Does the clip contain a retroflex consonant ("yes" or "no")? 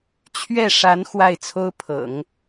yes